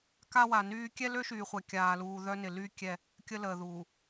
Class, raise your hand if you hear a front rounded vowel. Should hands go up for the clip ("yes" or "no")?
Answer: yes